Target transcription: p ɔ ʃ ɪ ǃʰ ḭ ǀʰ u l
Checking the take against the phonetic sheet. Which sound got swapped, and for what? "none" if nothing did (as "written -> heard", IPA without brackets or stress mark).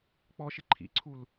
p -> k͡p